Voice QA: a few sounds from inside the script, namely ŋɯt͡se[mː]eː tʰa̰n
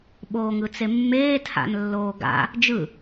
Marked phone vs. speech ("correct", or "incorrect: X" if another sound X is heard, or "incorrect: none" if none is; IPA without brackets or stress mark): correct